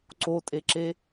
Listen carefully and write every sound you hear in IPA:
ǀ o tʼ e ǁ e

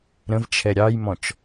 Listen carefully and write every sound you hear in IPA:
ɾ ə̃ v t͡ʃʰ ɛ ɾʲ ɑ j m ɔ̃ t͡ʃ

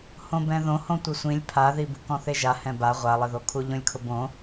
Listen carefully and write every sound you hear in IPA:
h õ b ɛ̃ ð õ h õ tʷ ɪ sʷ ĩ lʲ pʰ a ð i b ṳ k ɔ̃ θ e ʒ a h ɛ̃ b a ʁʷ a lˠ ɪ ð o kʰ u ʎ õ lʲ kʰ ʊ b õ

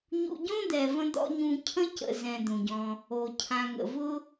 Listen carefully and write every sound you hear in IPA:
ɲ ṵ˦ ɟ õ˥ d̪ ɛ˨ v ə̃˥ d̪ ɔ̰˥ ɲ ũ˦ cʰ ə̃˥ c ə̰˨ z ɛ̃˨ d̪ ũ˩ ɟ ɔ̃˨ | o˩ cʰ ã˨ ŋ ə̰˩ v ʊ˥

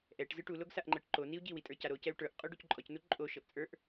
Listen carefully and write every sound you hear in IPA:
ʔ ɛ ʈ z ɨ ʈ u l o ɡ s a ʔ ŋ͡ǃ ɤ ʈ ǃ o n i u̯ ɟ i w i tʼ ə˞ c a ɾ o c ɛ u̯ ʈ ə˞ ʔ qʼ o ɖ u c ǃʼ ɔ c n u ǃʼ o ʃ ɤ ʔ t͡sʼ ə˞ ʔ

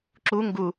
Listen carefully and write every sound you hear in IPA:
ǁ u ŋ ɡ u

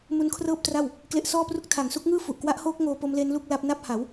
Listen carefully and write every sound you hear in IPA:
m u˧ n kʰ r ɤː˥˩ p̚ t r a˥˩ w | k l e˦˥ ʔ s ɔː˥˩ p r u˥˩ k̚ tʰ a˩˦ ŋ s u˦˥ k̚ ŋ ɯː˥˩ f u˨˩ ʔ k w a˦˥ ʔ h oː˦˥ k̚ ŋ oː˧ p o˦˥ m l e˦˥ n l u˥˩ k̚ l a˦˥ p̚ n a˥˩ p̚ h a˩˦ w

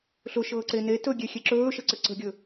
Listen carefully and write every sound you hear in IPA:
ɬ ʊ ʃ ɤː ǀ e n e t ɵ ɡʲ e xʲ e ǁ ɵː ʃ ə ǀ ə ǀ ə̤ ɡʲ ɵ

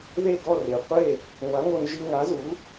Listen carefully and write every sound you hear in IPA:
ð e˥˩ ɡ ɔ˥˩ r e˩ qʷ e˥˩ | ŋʷ a˩˥ ŋ o˧ n ʒ i˧ ŋ a˩˥ z u˩˥

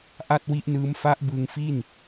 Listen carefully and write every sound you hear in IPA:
ʔ a˥˩ t̚ w i˦˥ ʔ n ɯː˦˥ m f a˦˥ ʔ b ɯ˧ ŋ f i˥˩ n

